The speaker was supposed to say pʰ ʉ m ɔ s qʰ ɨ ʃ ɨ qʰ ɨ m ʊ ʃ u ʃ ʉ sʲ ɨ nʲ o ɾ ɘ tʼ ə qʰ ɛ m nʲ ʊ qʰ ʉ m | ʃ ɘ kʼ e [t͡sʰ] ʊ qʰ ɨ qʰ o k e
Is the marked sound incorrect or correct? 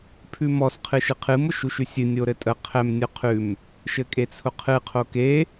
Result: correct